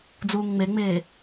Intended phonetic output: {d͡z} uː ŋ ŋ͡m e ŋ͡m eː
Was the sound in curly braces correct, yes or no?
yes